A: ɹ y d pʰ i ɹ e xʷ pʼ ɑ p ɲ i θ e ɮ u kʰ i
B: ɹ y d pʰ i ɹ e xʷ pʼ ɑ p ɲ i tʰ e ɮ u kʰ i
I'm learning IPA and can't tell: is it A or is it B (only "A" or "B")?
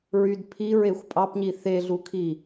A